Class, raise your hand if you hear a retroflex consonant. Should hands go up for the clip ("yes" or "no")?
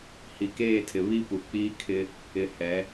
no